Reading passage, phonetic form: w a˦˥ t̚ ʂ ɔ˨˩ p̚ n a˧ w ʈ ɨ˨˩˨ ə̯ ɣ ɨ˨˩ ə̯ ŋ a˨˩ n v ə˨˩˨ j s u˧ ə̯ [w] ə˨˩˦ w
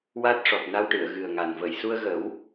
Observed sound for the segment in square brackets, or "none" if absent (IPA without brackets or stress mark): ɣ